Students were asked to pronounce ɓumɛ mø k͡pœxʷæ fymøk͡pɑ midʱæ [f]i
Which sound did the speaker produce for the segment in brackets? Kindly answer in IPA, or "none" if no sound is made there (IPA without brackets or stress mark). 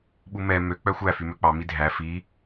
f